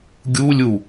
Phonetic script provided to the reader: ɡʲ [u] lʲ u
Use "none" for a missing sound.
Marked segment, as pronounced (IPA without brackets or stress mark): u